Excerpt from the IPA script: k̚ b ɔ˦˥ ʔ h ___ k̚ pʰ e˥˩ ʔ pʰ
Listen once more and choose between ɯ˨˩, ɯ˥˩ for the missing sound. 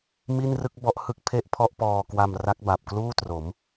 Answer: ɯ˥˩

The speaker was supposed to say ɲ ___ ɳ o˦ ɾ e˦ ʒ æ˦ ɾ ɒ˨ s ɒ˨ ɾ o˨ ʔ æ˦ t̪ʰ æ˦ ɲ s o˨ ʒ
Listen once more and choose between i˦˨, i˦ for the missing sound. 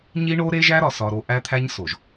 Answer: i˦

